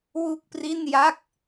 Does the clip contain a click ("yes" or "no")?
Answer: no